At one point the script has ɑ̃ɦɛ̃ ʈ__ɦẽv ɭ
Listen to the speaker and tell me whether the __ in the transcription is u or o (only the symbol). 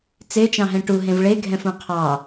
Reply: u